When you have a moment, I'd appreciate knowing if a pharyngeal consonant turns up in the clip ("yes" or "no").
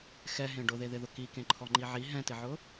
yes